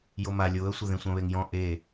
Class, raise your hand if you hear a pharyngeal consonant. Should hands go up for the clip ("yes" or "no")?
no